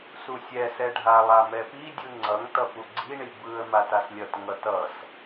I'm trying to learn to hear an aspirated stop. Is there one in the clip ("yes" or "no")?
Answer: no